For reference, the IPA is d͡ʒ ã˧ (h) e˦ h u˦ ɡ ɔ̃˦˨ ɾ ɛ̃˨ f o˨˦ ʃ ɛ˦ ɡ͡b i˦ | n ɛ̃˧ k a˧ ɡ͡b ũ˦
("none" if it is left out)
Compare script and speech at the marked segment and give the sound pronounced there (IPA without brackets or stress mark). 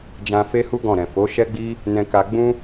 f